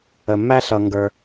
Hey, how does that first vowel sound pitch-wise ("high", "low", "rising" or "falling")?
low